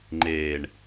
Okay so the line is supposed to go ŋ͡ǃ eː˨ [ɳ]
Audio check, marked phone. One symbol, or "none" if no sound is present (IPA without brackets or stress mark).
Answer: ɳ